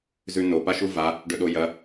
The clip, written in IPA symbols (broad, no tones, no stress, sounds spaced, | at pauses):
z ʉ n o p a ʃ u v a | ɖ ɵ ɗ o j ɐ